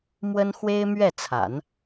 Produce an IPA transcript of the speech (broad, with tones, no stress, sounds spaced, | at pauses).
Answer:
m w ə˥ n x w e˥ ɪ̯ m ɥ ɛ˥˩ t͡sʰ a̰˨˩˦ n